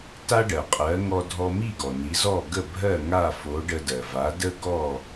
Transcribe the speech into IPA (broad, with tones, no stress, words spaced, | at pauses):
ta˥ɖɜ˩qʼɜ˩˥ ŋɔ˧dʱɔ˧mi˥˩ ɡɔ˩ni˩˥zɔ˥˩ ɡə˥˩bʱɜ˥˩ ŋa˥˩fo˩˥ ɖə˧dɜ˩va˩˥ də˥ɡɔ˥˩